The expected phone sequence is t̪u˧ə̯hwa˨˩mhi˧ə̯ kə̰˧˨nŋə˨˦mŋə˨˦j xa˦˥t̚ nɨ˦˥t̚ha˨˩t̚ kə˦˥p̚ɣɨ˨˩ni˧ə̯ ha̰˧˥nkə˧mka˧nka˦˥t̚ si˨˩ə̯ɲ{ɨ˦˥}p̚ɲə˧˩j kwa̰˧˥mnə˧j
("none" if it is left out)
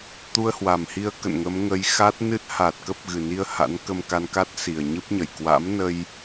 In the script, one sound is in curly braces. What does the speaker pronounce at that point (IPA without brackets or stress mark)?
ɨ˦˥